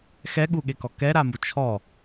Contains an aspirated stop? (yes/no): yes